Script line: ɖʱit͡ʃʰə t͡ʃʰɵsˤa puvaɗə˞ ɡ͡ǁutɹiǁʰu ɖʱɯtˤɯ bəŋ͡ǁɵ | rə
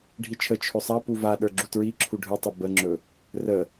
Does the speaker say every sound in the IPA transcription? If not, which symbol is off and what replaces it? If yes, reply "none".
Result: none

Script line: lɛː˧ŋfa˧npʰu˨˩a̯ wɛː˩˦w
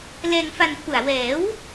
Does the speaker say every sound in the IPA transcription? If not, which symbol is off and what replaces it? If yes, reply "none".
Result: none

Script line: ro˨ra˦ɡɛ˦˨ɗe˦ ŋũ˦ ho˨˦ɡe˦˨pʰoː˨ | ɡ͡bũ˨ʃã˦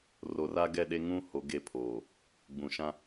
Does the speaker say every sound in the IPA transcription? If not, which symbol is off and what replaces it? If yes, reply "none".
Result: none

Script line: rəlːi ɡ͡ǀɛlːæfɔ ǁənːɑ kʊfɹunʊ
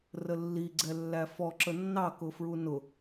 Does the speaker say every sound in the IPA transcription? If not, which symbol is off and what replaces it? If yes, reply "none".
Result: none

